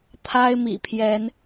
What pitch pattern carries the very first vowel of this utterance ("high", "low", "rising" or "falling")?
high